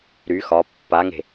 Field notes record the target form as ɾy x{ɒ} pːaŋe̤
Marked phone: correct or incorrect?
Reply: correct